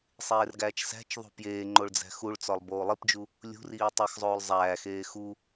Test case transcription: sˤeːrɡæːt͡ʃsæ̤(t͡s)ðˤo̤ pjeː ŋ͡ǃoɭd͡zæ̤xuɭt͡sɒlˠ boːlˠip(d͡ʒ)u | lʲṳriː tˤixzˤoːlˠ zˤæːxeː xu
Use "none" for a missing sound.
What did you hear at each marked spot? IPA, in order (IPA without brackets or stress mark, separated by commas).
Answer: t͡ʃ, d͡ʒ